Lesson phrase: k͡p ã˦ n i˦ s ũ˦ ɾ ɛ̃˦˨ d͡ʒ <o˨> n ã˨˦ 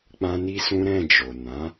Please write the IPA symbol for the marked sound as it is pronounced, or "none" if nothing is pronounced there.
o˨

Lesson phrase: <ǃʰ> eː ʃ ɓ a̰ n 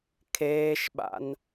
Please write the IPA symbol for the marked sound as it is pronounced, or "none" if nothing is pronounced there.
kʰ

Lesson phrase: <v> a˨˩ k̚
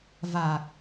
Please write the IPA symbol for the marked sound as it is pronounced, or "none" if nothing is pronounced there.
v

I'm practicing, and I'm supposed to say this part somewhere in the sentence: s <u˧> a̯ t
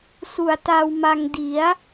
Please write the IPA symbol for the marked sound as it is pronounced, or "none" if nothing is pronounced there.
u˨˩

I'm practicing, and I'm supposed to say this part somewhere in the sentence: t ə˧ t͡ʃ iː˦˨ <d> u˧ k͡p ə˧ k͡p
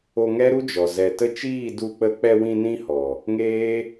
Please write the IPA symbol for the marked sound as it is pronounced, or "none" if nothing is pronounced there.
d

